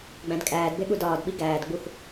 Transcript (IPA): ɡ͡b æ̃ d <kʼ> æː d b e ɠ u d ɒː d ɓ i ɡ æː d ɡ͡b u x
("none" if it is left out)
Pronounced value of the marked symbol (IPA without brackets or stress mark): kʼ